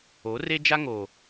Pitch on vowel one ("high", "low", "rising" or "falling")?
rising